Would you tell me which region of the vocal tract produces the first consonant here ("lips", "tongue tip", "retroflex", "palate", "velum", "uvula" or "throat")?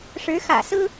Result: retroflex